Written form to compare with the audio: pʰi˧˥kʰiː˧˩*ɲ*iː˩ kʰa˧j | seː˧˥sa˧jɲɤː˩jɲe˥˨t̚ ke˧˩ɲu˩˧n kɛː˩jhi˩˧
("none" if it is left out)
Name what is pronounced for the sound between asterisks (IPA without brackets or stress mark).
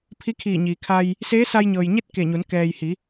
ɲ